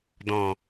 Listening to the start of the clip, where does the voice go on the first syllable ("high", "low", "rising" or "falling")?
low